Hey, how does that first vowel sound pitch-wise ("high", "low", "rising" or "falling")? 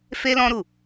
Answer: high